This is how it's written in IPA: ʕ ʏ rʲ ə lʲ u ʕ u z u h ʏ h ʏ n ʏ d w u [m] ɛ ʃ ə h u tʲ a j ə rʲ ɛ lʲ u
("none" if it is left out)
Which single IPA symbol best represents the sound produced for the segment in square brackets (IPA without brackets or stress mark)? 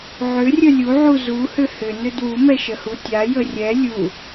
m